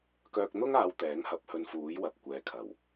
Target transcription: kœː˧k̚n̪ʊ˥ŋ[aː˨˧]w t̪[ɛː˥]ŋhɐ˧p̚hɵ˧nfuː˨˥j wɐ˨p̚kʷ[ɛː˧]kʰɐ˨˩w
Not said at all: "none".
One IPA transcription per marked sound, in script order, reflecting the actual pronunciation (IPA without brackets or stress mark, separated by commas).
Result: aː˨˧, ɛː˨˥, ɛː˨